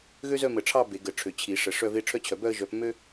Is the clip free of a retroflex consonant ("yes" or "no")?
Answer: no